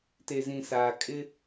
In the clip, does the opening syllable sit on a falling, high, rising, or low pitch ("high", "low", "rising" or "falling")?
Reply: low